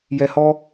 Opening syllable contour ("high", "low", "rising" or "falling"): low